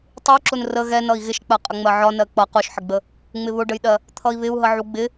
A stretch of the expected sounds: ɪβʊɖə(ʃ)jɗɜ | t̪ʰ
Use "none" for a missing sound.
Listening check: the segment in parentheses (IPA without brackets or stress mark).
none